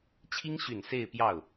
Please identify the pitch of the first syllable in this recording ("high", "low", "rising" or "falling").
high